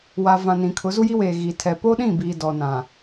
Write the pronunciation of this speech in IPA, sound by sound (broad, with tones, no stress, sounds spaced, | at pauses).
w a˨ v ã˨ n ĩ˨ kʰ ʊ˨˦ z u˦ j i˦ w eː˨ ɣ iː˨ tʰ ɛ˨ p o˦ ɗ ĩ˦˨ b iː˨ d ɔ˨ n ã˨